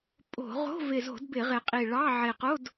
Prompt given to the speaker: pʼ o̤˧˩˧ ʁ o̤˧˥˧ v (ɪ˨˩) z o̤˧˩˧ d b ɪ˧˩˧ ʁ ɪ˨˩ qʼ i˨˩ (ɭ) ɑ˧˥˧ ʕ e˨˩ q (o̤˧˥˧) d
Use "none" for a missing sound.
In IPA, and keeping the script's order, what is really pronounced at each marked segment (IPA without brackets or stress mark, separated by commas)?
ɪ˨˩, ɭ, o˧˥˧